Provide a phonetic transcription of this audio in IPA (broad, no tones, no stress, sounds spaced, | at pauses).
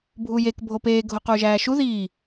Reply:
bʱ u j e k bʱ o p eː ɡʱ o q uː ʒ æː ʃ u ð iː